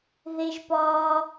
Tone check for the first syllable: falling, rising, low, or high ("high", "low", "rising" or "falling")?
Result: high